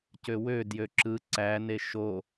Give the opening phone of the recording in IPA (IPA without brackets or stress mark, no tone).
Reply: c